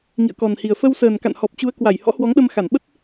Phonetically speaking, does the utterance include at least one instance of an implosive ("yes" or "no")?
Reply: yes